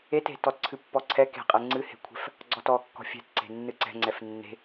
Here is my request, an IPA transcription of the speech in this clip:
e t e̤ t ɔ t ǀʰ ɨ pː ɔ ǀʰ ɛ k e̤ qʼ ɛ ŋ͡ǀ ɨ h e̤ kʷʰ ɛ̤ f | ɡ͡ǀ ɔ t ɔ kː ɔ̤ fʲ ɛ̤ t ǀ e̤ nː ɨ ǀ ɛ̤ ŋ͡ǀ ɛ f nː e̤

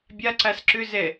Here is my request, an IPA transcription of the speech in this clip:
bʲ a ǀ a s ǁ ʏ z ɛ

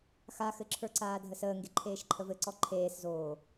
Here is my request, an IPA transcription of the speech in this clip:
x a x ɘ ǁʰ ə˞ ǀ aː dʱ ə s əː ŋ ɡ e ǃʰ eː ʃ ǃʰ ə v ɘ ǀ ɔ ǃʰ eː s z oː

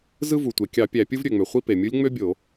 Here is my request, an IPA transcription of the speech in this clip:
z ɯ˥ v u˩ tʷ e˩ kʲ ɑ˧˩˧ pʲ æ˧˩˧ pʲ ɯ˥ v ɾʲ ø˩ ŋ͡m ø˩ χʷ i˥ p e˩ mʲ ɯ˧˥ lʲ ŋ͡m ø˥ bʲ o˧˩˧

